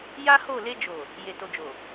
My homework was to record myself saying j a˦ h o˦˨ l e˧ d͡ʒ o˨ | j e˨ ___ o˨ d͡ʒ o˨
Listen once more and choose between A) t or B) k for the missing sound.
A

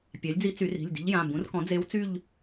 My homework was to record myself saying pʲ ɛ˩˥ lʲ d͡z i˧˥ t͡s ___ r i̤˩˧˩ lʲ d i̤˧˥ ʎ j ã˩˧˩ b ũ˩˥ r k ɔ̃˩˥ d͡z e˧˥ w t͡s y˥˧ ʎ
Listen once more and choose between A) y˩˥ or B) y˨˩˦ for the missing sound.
B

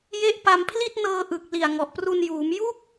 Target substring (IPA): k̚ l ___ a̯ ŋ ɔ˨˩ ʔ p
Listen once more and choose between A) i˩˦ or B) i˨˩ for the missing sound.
B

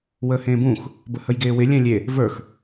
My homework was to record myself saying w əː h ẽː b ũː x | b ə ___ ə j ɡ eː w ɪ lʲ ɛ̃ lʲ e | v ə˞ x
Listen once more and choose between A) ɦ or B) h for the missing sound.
B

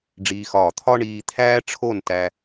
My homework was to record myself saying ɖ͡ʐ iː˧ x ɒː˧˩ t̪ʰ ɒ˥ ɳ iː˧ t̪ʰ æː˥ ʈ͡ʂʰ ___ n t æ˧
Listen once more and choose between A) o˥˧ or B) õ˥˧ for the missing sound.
A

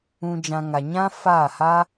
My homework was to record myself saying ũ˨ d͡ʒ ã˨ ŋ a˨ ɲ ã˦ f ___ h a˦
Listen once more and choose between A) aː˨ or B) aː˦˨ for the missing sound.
B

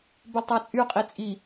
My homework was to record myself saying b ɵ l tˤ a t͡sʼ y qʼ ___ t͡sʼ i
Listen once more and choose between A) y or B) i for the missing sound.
B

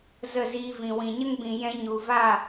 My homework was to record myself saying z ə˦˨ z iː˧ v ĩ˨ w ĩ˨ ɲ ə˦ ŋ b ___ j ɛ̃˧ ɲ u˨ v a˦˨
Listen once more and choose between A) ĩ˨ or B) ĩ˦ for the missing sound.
A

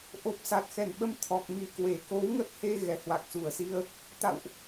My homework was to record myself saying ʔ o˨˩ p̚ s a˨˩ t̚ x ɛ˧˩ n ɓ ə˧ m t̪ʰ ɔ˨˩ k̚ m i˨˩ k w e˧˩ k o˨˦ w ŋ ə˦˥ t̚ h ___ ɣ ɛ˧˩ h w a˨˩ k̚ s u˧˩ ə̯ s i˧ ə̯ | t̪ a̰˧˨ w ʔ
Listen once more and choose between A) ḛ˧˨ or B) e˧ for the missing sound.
B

